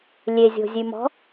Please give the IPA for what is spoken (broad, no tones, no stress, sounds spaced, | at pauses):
lʲ e zʲ o̤ zʲ ʉ m ɔ̤